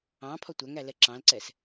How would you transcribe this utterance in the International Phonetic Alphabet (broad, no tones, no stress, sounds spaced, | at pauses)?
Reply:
ɑ̃ pʰ ɔ tʷ æ ŋ æ l ɛ ǁ ɑ̃ l ǀ ɛ s